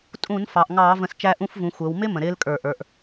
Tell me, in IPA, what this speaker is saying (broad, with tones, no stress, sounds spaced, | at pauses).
tʼ ũ˧˩˧ n f ɑ˩˧ ʔ ŋ ɑː˧˩˧ v ə̃˨˩ s t͡ʃ æ˦˥ ʔ ũ˦˥ f v ũ˩˧ xʷ əː˩˧ w m ɪ˦˥ m ə̃˨˩ ɾ ɪː˦˥ l kʼ ə˞˧˩˧ ʔ ə˞˩˧ ʔ